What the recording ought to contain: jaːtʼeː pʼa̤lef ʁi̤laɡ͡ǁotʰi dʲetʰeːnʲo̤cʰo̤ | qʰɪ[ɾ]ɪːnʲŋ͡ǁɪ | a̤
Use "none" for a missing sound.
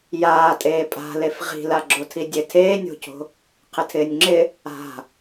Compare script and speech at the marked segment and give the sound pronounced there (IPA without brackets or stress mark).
tʰ